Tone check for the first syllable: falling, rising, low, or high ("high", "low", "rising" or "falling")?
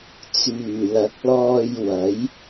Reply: low